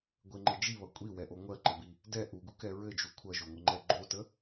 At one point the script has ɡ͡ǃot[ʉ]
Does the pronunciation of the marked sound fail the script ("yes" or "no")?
yes